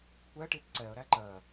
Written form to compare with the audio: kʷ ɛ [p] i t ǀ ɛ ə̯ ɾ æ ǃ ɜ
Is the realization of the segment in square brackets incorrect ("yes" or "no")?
yes